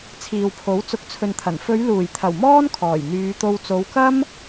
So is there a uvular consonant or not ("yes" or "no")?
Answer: no